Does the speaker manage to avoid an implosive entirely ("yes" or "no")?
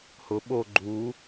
no